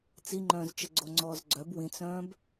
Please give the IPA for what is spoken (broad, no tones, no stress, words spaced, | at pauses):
t͡siŋ͡ǃœ̃ːzt͡ʃə ɡ͡ǀoŋ͡ǀɔːzɡ͡ǀœb wĩt͡sœ̃ːb